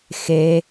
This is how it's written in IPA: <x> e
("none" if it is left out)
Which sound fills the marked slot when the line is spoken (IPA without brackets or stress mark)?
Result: x